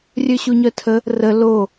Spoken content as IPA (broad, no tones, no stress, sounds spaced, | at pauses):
rʲ ø ɕ u ɲ œ tʰ ə | r ə l o